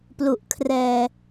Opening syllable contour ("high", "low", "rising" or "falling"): low